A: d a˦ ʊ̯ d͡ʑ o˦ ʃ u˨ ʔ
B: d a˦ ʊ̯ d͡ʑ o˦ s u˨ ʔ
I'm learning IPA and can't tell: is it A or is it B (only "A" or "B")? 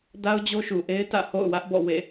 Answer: A